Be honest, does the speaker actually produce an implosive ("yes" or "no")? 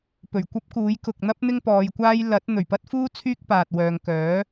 no